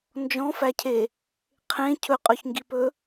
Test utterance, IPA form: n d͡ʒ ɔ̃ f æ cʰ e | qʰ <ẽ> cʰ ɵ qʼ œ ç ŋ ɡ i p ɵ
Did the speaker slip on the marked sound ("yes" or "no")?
no